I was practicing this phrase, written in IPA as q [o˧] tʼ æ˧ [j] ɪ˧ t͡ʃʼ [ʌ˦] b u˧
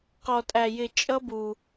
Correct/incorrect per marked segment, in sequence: incorrect: ɔ˧, correct, correct

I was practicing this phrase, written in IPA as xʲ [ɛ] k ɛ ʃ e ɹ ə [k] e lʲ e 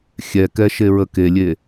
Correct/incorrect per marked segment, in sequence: correct, correct

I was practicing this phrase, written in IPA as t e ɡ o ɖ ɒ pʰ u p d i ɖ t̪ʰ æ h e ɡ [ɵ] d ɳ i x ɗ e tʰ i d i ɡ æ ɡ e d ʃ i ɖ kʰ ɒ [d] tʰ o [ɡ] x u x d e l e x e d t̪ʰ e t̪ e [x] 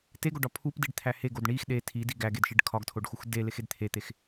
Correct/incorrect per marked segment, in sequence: incorrect: o, incorrect: ɡ, incorrect: ɖ, correct

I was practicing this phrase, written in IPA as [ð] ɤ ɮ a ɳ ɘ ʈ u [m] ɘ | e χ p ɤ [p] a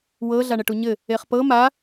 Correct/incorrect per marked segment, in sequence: incorrect: w, incorrect: ɲ, incorrect: m

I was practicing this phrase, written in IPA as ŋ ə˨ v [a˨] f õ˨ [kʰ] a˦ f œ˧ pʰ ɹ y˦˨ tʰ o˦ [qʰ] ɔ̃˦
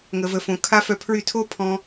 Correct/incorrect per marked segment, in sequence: incorrect: ə˨, correct, incorrect: pʰ

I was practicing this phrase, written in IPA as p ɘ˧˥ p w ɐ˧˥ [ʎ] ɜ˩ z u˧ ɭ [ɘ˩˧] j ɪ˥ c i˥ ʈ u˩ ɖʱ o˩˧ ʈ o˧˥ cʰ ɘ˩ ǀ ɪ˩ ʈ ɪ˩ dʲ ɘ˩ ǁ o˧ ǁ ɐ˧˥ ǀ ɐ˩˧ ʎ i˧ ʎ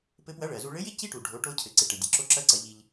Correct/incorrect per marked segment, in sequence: incorrect: ɭ, incorrect: ɘ˧˥

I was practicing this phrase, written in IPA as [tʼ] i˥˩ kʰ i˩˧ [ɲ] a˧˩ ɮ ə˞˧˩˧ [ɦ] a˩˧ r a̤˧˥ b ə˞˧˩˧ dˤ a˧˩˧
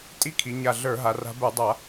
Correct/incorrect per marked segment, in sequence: correct, correct, correct

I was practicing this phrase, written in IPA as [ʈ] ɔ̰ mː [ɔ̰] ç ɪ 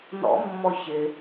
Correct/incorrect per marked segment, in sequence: incorrect: n, incorrect: ɔ

